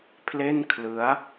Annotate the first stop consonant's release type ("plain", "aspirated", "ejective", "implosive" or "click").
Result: aspirated